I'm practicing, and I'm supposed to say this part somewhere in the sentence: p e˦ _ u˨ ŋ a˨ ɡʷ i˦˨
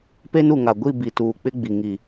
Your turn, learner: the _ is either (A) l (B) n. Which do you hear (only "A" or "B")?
B